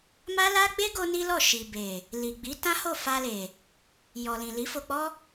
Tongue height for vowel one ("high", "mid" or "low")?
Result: low